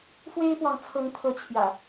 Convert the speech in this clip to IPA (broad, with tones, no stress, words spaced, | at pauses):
fwe˦ɪ̯pwɑ˨ŋt͡sʰɤ˨˦ŋt̪ʰɤ˨˦ t͡ɕʰjä̰˨˩